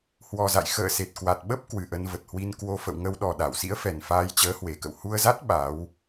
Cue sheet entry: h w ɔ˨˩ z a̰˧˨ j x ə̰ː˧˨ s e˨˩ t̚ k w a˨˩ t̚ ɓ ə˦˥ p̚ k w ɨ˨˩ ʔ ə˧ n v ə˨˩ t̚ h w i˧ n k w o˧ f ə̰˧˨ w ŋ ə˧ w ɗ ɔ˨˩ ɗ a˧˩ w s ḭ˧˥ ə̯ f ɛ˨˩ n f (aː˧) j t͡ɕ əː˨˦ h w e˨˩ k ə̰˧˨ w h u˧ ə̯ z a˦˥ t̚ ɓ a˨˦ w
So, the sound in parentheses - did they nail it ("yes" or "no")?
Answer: yes